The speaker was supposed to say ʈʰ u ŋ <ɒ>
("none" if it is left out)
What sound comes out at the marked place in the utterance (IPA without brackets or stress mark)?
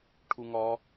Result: ɒ